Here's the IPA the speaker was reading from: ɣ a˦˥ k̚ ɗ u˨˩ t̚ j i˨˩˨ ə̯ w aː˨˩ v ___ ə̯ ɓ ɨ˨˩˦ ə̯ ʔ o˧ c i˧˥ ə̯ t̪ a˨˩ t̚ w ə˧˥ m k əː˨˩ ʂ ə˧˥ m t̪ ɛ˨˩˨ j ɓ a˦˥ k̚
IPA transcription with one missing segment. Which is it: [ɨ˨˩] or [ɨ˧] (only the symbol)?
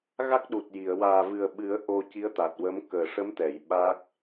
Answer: ɨ˨˩